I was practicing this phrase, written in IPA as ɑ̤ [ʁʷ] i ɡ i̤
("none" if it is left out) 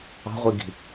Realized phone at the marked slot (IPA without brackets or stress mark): ʁʷ